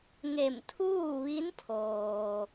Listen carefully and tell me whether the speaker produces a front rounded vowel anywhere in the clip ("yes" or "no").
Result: no